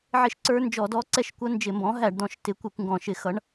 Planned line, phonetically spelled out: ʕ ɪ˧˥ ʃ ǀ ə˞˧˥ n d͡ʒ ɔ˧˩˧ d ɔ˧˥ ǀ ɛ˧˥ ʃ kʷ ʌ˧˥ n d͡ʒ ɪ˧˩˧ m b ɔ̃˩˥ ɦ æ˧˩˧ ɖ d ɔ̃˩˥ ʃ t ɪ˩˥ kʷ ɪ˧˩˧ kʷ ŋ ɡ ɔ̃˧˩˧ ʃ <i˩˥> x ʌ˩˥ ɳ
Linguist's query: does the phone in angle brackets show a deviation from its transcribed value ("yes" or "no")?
yes